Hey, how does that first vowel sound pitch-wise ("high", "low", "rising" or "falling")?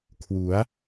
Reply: rising